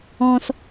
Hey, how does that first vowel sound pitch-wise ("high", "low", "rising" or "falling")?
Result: high